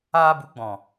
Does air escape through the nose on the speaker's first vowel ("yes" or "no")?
no